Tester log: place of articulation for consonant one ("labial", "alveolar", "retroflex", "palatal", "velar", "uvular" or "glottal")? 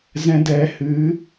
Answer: alveolar